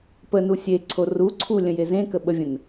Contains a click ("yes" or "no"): yes